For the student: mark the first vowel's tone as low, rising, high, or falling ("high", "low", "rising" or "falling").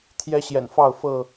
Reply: high